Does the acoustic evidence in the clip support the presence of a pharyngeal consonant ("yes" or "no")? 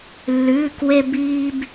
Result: no